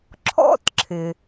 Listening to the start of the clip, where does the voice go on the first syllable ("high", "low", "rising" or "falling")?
high